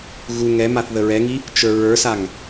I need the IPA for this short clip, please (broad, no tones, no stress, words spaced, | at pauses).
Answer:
ɣu ŋɛmaθ ðəɹɛŋi | t͡ʃə˞ɹə˞saŋ